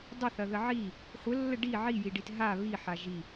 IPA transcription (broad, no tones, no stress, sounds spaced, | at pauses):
dˤ ə θ ɐ ð ə ʕ i | χʷ ə lː ə ɖ i ʕ i j i ɖ i t ɦ a β i ħ a ʒ i